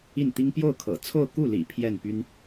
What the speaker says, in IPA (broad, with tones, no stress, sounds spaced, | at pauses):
i˥˩ n t̪ i˥ ŋ p j o˥˩ ʊ̯ kʰ ɤ̰˨˩ t͡sʰ o˥˧ ʊ̯ k u˥˩ l ḭ˨˩ pʰ j ɛ˥˩ n p y˥ n